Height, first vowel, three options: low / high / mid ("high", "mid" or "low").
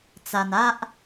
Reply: low